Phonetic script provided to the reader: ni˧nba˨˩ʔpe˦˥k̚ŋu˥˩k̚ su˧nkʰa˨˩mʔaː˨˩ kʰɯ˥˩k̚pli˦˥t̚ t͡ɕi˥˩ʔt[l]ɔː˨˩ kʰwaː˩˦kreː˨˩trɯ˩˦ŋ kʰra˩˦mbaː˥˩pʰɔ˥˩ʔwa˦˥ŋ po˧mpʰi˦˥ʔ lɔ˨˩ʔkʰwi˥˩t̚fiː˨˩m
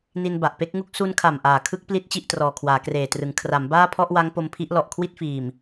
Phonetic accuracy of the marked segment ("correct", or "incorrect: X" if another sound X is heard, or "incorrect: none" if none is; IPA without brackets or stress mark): incorrect: r